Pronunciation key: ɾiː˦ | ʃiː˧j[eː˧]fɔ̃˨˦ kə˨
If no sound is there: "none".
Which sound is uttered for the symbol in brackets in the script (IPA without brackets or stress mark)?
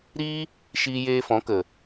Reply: eː˧